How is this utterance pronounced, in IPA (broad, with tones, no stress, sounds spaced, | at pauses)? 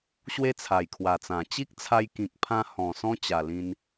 ɕ w e˦ t͡sʰ a˨˩ j kʰ w a˨˩ t͡s ã˨˩ t͡ɕ i˦ k̚ t͡sʰ a˧ j k ĩ˨ k̚ pʰ ã˧ h ɔ̃˨˩ s ɔ̃˧ t͡ɕ a˨˩ l ĩ˧ n